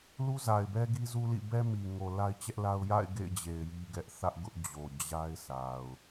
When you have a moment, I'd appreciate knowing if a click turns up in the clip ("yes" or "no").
no